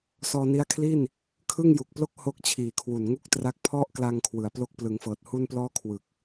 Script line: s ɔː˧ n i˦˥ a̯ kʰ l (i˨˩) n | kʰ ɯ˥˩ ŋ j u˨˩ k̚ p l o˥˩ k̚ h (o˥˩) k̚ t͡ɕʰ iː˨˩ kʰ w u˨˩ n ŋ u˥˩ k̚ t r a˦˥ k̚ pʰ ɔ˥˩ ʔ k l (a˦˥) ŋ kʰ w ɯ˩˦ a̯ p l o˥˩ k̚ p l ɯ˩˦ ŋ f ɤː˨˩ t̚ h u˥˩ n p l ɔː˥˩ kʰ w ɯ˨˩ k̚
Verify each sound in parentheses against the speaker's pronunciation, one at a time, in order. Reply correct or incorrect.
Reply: incorrect: i˥˩, correct, incorrect: a˧

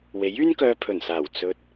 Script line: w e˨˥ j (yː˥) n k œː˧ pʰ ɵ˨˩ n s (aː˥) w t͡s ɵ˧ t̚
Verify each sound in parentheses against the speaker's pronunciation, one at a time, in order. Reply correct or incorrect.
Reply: correct, incorrect: aː˨˩

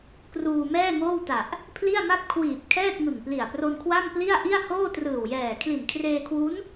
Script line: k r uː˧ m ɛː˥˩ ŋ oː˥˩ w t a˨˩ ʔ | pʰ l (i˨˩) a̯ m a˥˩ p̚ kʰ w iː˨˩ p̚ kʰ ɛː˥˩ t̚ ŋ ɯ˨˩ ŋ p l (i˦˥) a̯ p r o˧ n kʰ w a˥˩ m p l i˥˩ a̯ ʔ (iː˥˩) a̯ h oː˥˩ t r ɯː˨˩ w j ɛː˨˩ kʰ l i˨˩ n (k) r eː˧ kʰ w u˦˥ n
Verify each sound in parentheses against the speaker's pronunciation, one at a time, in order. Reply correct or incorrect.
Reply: incorrect: i˥˩, incorrect: i˨˩, incorrect: i˥˩, incorrect: kʰ

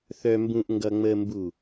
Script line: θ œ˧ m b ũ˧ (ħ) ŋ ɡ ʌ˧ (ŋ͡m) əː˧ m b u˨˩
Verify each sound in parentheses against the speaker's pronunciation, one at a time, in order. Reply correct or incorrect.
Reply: incorrect: ʔ, correct

